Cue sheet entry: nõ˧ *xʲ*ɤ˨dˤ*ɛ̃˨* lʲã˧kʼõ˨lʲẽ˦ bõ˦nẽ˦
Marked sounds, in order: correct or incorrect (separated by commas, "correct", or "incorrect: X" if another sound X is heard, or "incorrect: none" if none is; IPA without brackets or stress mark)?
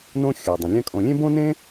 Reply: correct, incorrect: ə̃˨